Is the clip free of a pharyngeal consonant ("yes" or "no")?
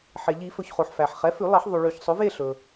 no